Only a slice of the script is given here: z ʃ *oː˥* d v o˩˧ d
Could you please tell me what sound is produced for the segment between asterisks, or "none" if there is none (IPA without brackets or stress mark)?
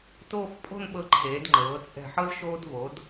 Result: oː˧